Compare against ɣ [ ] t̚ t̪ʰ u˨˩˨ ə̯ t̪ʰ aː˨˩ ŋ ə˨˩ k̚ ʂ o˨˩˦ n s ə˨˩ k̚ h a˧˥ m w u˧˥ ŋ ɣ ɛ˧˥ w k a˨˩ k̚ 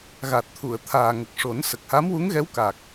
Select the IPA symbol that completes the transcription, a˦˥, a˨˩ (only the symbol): a˨˩